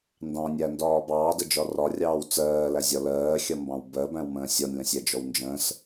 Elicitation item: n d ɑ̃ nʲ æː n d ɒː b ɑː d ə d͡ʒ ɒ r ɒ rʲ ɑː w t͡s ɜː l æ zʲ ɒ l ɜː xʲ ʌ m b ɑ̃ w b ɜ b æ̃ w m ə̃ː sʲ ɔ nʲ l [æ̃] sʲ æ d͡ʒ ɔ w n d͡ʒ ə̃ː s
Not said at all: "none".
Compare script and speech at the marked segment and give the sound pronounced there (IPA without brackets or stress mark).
ə̃